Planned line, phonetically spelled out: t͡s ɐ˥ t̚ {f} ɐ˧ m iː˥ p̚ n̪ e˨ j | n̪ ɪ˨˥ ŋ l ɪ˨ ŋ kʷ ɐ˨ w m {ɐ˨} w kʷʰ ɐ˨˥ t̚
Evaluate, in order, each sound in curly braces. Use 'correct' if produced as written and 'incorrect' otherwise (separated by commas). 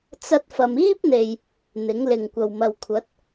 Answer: correct, correct